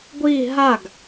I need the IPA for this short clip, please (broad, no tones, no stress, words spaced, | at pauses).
ɡʷi ɦaɡ